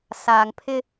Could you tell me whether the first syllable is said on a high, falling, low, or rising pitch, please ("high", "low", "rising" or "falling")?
low